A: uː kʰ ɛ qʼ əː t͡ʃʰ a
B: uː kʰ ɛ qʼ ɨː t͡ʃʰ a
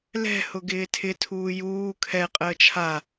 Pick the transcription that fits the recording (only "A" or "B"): A